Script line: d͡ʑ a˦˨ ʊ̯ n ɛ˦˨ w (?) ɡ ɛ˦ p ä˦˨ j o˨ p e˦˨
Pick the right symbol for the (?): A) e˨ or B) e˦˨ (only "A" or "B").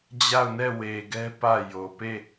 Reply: A